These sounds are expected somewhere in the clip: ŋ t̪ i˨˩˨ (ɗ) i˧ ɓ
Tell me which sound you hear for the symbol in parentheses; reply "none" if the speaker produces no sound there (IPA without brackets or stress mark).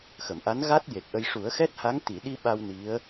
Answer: ɗ